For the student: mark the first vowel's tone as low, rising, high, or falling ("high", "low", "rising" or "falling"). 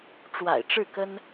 low